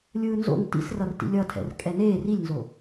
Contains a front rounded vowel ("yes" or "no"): no